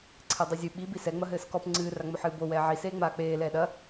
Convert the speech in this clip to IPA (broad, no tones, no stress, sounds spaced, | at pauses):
ǀʰ e dˤ ɨ zʲ ɨ ɓ i b i s ɛ ŋ͡m ɐ ɦ ɘː s k ɔ p ŋ͡ǀ ɨː r a ŋ͡m o ħ ɨː b o w ɛː ʕ i s eː ŋ͡m aː k͡p eː l ɛː ɗ ɐ